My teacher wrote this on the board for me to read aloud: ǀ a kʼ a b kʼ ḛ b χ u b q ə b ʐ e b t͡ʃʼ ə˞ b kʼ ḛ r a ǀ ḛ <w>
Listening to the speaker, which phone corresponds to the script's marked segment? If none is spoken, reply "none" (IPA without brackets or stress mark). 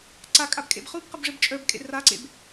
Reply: b